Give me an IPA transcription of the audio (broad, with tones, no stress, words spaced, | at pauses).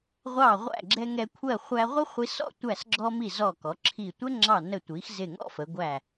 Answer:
ʁʷɑ˧˩ʁʷæ̰˧˩ɡ͡ǁɛ˧ ŋɛ˧ kʷʰɜ˧˩ χʷæ˧ʁʷə˥χʷi˧sɔ̰˥˧ tʷæ˧˩sɡ͡ǁɔ˧mi˧˩ zɔ˧˩kɔ˩˧ǁʰi˧˩tʷɛ˥ ŋ͡ǁɑ˧˩nə˧˩tʷi˩˧x zɪ˧˩ŋɔ̰˥˧fə˩˧ ɡʷæ˧˩